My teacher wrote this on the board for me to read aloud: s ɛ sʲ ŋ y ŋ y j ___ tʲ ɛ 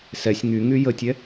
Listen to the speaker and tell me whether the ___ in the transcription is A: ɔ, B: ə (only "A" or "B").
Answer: B